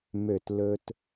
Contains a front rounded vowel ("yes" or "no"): yes